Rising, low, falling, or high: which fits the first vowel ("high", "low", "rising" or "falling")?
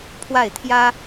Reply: falling